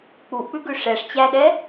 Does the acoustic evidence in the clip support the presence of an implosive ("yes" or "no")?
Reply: yes